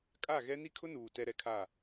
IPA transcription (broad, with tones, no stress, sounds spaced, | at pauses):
kʼ a˦˨ ɣ ɛ˦ n i˦ kʰ ʊ˦ n uː˨ t ɛ˦ ɾ ɛ˦ kʰ a˦˨